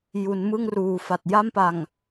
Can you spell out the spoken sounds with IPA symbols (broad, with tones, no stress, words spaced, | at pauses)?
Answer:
ju˩˦nmɯ˥˩ŋruː˨˩fa˨˩t̚ ja˥˩mpa˨˩ŋ